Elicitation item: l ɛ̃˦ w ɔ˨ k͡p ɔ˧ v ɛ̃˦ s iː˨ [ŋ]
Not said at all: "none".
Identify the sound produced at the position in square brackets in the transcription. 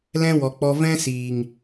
ŋ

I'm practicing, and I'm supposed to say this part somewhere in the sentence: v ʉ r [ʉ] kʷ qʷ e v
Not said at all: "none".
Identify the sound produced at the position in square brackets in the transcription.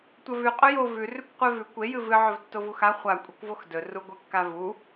ʉ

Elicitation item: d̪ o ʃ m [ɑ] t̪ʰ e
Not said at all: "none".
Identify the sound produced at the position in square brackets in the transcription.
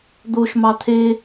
ɑ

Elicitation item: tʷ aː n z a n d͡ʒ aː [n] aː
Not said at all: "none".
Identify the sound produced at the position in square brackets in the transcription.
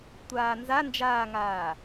ŋ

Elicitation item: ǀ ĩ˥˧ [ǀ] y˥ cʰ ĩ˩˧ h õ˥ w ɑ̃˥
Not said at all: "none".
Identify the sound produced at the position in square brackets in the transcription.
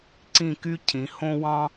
k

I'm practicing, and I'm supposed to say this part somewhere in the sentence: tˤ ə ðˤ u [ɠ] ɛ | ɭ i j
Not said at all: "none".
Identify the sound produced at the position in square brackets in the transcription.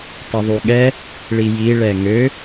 ɠ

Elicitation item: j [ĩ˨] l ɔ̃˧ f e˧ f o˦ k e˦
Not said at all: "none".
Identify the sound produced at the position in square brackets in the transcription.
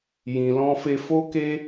ĩ˨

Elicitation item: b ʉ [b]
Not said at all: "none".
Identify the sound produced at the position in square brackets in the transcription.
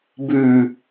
none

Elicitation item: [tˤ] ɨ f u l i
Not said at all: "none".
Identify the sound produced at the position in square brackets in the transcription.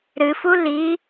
ɾ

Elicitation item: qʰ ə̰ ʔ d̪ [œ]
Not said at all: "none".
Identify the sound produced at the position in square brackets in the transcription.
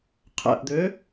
ø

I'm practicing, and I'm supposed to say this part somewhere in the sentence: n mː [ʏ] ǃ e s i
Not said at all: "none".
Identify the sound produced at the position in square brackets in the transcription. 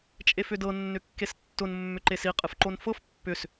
ʏ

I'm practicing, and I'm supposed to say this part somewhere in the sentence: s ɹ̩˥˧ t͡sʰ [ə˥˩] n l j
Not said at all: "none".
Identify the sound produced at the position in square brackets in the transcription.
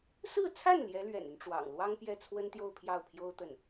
a˥˩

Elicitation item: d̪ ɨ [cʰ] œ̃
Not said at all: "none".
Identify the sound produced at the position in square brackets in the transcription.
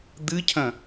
cʰ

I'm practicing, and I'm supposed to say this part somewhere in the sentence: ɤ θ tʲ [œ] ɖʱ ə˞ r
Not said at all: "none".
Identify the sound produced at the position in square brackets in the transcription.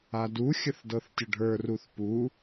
ə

